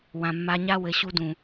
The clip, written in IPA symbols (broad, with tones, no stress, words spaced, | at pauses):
wã˨mːa˧ɲa˦ wɘ˨ɕu˧dũ˨